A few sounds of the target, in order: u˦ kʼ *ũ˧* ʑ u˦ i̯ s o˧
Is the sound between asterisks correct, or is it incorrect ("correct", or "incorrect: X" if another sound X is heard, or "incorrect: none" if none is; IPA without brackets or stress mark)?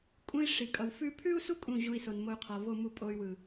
incorrect: ũ˦˨